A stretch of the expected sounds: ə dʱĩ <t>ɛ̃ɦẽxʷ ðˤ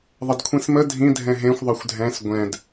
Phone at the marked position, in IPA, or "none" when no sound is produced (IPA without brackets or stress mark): dʱ